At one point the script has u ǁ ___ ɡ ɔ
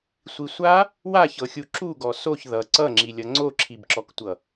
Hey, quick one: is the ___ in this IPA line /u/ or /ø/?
u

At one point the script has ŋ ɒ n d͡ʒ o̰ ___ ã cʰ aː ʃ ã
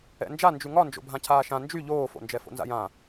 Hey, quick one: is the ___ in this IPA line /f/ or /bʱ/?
bʱ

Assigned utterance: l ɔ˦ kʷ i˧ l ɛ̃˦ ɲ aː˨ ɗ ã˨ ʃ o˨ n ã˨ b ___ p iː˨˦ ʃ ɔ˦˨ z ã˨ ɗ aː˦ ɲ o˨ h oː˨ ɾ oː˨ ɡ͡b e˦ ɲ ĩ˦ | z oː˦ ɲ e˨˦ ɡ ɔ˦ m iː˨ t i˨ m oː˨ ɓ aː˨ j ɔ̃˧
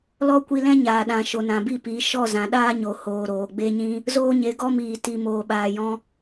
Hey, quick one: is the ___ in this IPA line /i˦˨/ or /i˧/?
i˦˨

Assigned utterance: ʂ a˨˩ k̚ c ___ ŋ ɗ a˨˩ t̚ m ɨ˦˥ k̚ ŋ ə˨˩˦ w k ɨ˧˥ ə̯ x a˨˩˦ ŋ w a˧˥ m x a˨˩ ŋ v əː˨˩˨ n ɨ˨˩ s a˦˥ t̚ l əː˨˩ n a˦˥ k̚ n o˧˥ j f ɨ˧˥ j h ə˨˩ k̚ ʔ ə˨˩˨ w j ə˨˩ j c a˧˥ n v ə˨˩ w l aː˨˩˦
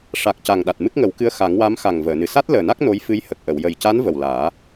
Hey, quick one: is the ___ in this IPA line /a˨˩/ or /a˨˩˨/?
a˨˩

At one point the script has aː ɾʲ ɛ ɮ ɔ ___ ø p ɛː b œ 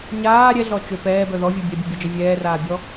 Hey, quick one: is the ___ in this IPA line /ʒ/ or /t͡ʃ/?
t͡ʃ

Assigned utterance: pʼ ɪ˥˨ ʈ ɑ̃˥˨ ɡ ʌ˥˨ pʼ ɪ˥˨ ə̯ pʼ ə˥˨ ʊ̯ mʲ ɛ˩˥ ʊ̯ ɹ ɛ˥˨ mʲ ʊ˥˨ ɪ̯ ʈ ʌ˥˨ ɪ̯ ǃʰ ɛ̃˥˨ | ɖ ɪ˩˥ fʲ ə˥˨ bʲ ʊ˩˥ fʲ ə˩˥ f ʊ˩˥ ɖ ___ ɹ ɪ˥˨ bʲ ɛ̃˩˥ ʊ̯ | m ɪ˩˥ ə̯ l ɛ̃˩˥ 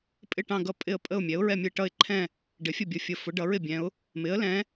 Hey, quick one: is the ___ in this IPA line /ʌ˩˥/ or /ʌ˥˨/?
ʌ˩˥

